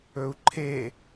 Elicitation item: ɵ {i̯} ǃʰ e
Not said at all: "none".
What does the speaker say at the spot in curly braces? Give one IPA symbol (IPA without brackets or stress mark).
u̯